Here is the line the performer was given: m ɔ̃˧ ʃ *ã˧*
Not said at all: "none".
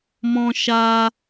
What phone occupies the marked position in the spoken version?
a˧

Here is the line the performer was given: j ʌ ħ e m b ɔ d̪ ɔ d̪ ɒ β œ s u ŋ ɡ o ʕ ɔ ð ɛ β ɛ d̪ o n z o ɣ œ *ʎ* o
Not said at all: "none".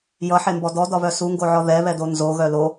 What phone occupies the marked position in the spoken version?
l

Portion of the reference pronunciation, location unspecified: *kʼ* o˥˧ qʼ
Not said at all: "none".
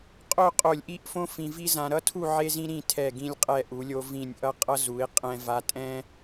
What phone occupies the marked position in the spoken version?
qʼ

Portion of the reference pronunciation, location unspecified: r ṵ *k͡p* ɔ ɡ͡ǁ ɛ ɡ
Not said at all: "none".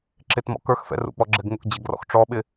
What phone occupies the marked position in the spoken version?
k͡p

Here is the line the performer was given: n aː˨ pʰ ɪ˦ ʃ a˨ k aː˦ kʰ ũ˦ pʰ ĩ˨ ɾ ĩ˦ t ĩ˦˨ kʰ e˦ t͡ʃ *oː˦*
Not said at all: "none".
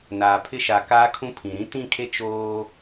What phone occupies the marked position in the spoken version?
oː˦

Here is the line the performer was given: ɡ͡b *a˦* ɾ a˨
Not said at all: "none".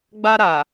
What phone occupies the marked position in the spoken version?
a˦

